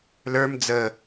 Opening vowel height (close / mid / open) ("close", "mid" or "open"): mid